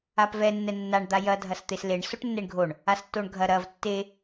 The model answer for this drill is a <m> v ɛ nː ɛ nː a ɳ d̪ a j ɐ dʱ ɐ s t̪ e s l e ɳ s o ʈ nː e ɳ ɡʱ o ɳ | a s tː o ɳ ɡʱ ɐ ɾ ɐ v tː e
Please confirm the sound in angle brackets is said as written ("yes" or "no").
no